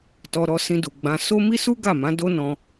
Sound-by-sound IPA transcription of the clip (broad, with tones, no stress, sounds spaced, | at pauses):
t ɔ˧ ɾ ɔ˧ s ĩ˧ d u˨ ɡ͡b ã˧ s o˦ m i˦ s u˦ ɡ a˦˨ m ã˨˦ d o˦ n ɔ̃˧